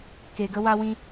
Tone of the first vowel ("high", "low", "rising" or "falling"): low